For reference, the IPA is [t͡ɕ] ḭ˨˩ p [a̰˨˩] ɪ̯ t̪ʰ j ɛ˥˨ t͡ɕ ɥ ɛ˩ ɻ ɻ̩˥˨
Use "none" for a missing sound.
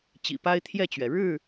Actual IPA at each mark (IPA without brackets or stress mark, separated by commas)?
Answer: t͡ɕ, a˦